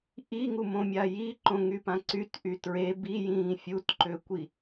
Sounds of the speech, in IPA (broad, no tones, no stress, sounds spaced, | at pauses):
ʔ i ŋ u m õ mʲ a j i ǃ õ ŋ y p ã ǀ y t ʔ y t ɹ e b i j ĩː fʲ u t ǃ ø kʷ i